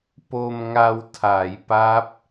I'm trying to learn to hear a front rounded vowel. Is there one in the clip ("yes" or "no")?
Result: no